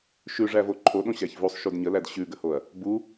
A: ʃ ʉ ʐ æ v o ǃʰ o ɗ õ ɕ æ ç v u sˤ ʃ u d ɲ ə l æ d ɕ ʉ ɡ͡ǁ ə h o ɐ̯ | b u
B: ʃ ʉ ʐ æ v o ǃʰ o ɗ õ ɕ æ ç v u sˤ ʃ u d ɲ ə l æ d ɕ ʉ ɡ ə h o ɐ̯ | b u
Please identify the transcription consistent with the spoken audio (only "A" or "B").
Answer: B